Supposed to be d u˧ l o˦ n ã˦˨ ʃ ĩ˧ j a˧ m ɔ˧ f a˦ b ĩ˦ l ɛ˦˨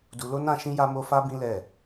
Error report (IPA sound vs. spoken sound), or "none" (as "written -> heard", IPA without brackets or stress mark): ɔ˧ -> o˧